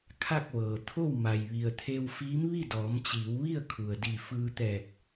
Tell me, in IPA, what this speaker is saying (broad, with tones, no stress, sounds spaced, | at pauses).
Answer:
kʰ a˥˨ k̚ ʋ ɤː˩ t̪ʰ o˥˨ w m a˩ j ʋ i˩ ə̯ t̪ʰ e˧ w f iː˧˥ m ʋ i˥˨ d ɔː˩˧ m t͡ɕ iː˩˧ w ʋ i˥˨ ə̯ kʰ u˩ ə̯ d i˧˩ f ɯː˧ t̪ ɛː˧˩ k̚